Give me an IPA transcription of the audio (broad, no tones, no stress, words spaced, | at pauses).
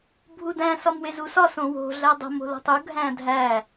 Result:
bʱudæ̃ sɒmwezusɒ sõwo̤ ɮædˤo̤ mo̤lo̤tˤu ɡʱæ̃dʱæ